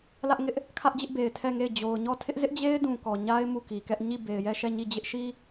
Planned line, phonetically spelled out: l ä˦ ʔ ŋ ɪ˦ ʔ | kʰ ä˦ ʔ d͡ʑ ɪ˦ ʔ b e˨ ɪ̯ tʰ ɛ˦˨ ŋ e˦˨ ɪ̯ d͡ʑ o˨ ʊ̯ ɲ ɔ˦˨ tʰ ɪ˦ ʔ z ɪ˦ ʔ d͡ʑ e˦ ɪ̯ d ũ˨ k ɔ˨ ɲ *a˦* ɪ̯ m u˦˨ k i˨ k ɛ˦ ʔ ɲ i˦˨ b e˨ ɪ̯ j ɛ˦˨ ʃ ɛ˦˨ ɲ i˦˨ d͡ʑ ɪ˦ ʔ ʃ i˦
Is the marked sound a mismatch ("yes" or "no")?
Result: no